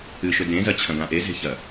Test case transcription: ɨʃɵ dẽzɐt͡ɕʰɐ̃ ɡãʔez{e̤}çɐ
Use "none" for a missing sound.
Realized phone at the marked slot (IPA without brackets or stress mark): e̤